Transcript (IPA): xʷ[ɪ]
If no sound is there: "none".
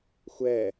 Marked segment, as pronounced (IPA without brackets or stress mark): ɛ